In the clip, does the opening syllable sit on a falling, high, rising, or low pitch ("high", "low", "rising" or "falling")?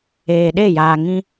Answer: low